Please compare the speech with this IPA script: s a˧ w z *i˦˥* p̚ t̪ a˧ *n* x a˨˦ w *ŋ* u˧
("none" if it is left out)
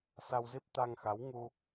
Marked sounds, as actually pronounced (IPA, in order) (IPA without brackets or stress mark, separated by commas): i˦˥, ŋ, ŋ